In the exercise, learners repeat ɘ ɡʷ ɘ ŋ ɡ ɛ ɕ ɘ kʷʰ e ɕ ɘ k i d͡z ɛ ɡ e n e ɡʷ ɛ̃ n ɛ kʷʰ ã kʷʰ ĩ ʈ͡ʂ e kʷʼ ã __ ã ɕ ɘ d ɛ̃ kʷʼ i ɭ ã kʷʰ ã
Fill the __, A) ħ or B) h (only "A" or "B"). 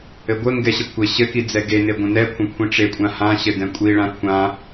B